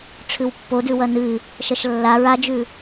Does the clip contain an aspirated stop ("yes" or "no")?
yes